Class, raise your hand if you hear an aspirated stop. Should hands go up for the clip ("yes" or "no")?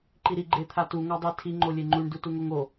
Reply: yes